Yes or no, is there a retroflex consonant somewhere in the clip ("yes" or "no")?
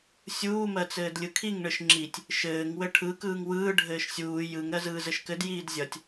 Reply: yes